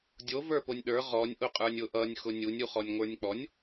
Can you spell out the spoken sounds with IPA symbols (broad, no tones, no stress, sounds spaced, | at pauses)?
dʲ o v ə˞ p o nʲ ɗ ə˞ ʁ ɔ nʲ ʔ ʊ qʼ ə˞ nʲ ʊ ʔ ʌ nʲ x ʊ nʲ u nʲ u χ ɔ nʲ ŋʷ ə˞ nʲ k͡p ɔ nʲ